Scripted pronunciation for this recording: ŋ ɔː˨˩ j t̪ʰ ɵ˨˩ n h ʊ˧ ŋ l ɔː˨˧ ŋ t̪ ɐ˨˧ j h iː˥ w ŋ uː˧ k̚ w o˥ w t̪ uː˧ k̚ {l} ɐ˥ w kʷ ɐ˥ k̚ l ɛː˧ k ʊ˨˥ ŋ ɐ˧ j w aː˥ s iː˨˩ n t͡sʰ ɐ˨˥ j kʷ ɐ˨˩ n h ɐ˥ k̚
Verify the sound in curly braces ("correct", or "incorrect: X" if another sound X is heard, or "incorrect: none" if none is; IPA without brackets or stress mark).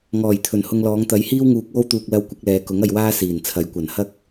correct